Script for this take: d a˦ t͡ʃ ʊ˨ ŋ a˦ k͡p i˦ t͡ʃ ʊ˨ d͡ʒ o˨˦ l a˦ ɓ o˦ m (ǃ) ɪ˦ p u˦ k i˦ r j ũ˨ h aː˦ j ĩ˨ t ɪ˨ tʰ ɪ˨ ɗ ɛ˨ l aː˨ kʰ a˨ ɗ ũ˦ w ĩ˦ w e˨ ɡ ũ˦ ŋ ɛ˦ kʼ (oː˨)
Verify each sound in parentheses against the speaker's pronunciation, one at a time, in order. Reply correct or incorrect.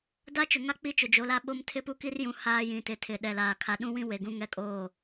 incorrect: tʰ, incorrect: oː˦˨

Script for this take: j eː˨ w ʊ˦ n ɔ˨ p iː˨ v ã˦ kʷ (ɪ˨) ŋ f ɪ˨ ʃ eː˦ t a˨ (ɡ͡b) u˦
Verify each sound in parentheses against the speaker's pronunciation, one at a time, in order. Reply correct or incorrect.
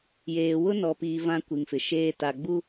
incorrect: i˨, correct

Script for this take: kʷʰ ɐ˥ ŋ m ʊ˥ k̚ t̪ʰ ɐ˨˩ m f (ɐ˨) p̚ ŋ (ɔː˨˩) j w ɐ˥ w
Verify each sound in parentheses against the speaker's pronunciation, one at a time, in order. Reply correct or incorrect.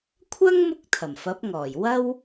incorrect: ɐ˨˥, correct

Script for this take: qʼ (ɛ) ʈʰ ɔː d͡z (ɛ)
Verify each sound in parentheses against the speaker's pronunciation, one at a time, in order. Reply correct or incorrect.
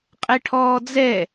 correct, correct

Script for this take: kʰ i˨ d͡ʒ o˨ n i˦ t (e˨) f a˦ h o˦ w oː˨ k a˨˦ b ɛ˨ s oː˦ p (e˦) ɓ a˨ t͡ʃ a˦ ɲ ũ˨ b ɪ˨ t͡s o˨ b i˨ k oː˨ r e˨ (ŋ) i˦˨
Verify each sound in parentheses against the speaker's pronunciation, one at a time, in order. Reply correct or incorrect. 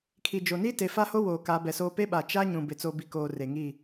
correct, correct, correct

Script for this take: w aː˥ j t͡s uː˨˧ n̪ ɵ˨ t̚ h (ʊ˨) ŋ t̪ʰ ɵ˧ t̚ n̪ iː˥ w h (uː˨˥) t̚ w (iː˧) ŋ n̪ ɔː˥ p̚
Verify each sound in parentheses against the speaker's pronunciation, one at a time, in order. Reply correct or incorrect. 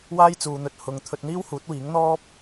correct, correct, incorrect: iː˨˥

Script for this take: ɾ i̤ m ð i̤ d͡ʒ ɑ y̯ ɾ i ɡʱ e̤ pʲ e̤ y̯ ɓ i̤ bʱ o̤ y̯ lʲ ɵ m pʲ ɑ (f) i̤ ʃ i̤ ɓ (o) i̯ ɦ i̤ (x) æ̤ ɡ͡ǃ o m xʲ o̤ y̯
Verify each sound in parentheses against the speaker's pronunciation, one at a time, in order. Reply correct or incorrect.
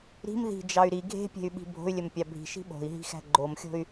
incorrect: bʱ, incorrect: o̤, correct

